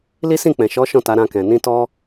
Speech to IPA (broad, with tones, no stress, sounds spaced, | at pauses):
l i˦ s ĩ˦˨ k͡p ɛ̃˨ ʃ ɔ˨˦ ʃ ɔ̃˦˨ t a˨˦ ɾ ã˧ k ɛ̃˨ n ĩ˧ t ɔ˧